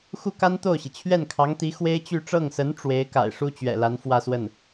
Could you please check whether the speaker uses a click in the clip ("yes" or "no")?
no